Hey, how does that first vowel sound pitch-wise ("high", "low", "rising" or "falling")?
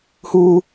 high